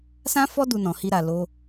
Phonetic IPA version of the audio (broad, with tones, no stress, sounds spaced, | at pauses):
s ã˦ f ɔ˦ d u˧ n ɔ̃˨ h i˧ ɾ a˨ l o˧